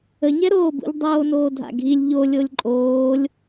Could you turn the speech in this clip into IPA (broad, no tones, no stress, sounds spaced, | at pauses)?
ə ɲ ɛ ɾ oː b ṵ ʎ dˤ oː n oː dʱ a̰ ɡʱ i lʲ ʎ o lʲ o lʲ ǃʼ oː lʲ